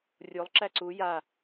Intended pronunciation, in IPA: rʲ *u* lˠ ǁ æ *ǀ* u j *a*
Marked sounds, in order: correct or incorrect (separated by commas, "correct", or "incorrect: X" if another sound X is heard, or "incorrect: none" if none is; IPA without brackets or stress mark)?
incorrect: o, correct, correct